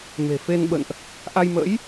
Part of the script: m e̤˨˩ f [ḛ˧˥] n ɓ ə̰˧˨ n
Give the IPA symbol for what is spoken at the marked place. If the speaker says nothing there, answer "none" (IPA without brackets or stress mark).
e˧